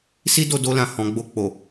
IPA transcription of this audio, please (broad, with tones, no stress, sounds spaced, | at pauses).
s i˦ d o˧ d o˧ l ã˨ h ɔ̃˨ ɡ͡b o˧ k͡p o˨